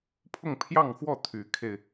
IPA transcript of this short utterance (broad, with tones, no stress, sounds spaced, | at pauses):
pʰ ʊ˥˧ ŋ pʰ j ɑ˥˧ ŋ x w ɔ˥˩ t̪ʰ y˧˥ kʰ e˧ ɪ̯